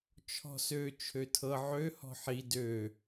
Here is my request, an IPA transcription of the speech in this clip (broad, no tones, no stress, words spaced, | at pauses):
t͡ʃʰɔ̤sø t͡ʃʰøtʰɤ ʕø hɔ̤ħi dø